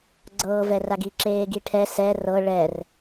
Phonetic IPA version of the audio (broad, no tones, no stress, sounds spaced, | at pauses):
ɡ͡ǀ ɤː v ɛ r a ɡ i ǁ eː ɡ i ʈʰ ɛ s ɛ r ɤ ɭ ɛ r